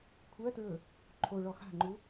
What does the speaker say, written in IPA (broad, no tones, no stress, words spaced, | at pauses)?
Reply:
kʷʰɜtɹɵ | ǃʰo ɭɔxa̤ŋ͡ǃu